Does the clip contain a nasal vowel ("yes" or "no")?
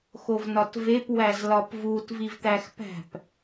no